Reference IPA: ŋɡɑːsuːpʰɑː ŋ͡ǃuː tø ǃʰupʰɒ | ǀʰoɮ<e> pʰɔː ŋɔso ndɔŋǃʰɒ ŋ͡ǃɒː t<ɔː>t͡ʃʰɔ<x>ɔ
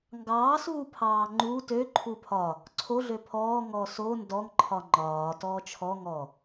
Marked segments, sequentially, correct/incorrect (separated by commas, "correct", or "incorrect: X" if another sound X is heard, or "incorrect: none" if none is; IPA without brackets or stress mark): incorrect: ø, correct, incorrect: ŋ